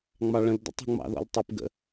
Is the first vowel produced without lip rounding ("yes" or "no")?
yes